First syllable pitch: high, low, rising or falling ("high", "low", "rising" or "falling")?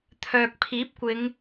low